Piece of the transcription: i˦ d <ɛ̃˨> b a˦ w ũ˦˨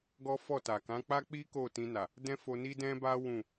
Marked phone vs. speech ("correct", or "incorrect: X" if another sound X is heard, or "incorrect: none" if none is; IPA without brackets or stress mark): incorrect: ɛ̃˦